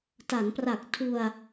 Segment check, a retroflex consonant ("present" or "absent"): absent